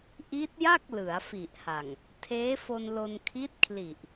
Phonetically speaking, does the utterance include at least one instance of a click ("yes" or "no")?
no